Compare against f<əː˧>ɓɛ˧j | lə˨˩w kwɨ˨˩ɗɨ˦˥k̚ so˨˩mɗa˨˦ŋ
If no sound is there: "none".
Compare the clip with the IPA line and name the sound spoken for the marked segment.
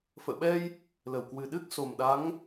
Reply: ə̰ː˧˨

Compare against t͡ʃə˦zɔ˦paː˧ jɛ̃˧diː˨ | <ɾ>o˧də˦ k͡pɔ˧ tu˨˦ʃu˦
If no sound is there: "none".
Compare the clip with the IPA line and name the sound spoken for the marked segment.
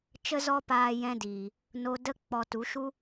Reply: n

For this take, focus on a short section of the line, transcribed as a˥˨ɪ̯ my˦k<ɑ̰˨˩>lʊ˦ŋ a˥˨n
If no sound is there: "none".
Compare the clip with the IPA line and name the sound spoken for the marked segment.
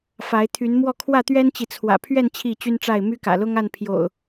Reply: ä̰˨˩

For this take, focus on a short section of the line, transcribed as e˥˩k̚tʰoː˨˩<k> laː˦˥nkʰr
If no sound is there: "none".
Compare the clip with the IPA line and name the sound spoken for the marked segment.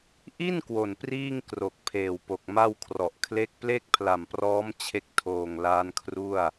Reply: ŋ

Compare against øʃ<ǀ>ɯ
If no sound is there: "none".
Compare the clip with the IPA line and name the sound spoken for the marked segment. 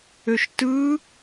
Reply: t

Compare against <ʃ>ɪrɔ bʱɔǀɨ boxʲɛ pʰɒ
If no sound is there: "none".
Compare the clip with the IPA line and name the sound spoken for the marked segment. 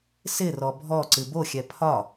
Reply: s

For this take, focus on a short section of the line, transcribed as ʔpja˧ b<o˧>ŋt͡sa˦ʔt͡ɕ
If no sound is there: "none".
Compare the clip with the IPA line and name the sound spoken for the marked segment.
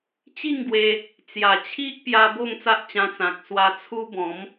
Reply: o˥˧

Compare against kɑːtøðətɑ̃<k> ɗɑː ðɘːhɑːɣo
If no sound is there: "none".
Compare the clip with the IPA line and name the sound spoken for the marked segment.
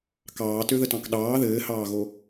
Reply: k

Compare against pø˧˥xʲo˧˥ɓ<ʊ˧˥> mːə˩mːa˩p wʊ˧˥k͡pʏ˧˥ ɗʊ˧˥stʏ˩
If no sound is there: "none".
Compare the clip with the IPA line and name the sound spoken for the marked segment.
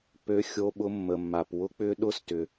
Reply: ʊ˧˥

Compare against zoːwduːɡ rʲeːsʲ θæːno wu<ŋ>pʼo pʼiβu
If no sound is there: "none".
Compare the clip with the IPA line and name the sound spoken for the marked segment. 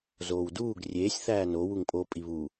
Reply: ŋ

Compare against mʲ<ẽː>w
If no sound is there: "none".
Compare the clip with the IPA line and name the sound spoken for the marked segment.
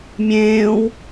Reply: ẽː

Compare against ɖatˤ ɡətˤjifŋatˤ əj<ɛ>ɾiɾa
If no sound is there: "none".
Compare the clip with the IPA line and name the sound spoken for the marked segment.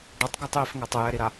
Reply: ɛ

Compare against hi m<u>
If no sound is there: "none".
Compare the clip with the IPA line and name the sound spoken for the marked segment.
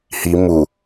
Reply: u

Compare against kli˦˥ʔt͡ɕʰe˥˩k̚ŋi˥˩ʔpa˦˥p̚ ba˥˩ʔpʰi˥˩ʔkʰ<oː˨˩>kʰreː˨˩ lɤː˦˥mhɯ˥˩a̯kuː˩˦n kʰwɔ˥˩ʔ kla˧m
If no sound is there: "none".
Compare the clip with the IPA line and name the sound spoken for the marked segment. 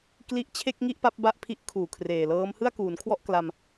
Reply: uː˨˩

